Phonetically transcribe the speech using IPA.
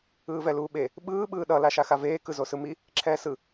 ɯːvɛluːɓe | ɓɯː ɓɯːɗʌ laʃaxaveː kɯzosɯmi | ǁʰɛːsɯ

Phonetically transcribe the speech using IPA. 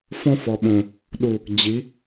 fɔ̃˦fɔ˨ɓõ˨ | ɗu˨ | d͡ʑi˨˦

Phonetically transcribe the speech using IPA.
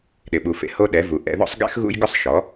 ɗɪ˨ɓu˨fḛ˧ ho˦ ɗɛ˨˦vu˨ ʔɛ̰˧ðɔ̰˦sˤɡɛ̰˦x ɣṵ˦jɡʊ˦sˤ ʃɔ˨˦

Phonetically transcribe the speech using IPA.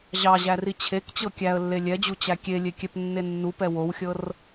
ʑɑʑæri t͡ɕʰekt͡ɕɤ kʲæə̯lːe lʲɛd͡ʑut͡ɕæ kʲelʲekʲɛpnːe nːupɛ wowxʲɤr

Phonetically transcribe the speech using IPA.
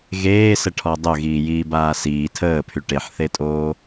ɣeːsəʈʰɔ dˤœɣiːjiːbaː siː tʰəːpʰy ʈeħθetʼoː

